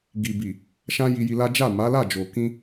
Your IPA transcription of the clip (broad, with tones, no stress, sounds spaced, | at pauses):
ɡ i˨ b i˨ | ʃ ã˦ j i˧ j i˧ l a˦ d͡ʒ a˦˨ m a˨˦ l a˦˨ d͡ʒ o˨ k ĩ˧